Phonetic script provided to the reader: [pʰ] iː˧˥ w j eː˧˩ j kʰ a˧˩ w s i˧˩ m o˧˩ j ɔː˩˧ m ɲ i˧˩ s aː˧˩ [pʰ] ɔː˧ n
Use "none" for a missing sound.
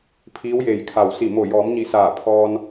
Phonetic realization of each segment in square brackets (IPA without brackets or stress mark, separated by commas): pʰ, pʰ